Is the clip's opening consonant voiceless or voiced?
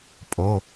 voiceless